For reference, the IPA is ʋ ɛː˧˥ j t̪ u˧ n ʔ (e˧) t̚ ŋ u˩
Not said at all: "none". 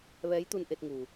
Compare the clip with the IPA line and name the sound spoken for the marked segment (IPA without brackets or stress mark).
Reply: e˧